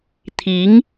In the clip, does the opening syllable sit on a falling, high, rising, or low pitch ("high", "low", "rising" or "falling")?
rising